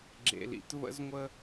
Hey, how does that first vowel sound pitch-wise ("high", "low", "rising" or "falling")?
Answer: low